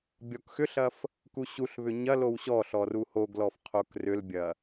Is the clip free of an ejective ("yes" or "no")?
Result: yes